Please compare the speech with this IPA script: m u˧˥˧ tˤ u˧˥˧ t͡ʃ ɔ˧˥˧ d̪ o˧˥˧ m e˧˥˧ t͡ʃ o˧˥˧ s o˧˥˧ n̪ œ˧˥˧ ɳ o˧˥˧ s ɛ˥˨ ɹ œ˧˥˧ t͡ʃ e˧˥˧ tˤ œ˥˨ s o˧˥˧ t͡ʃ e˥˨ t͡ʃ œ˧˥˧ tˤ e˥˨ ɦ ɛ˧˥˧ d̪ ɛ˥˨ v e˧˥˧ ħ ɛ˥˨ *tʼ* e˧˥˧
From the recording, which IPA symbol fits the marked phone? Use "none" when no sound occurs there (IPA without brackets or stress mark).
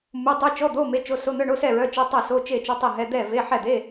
d̪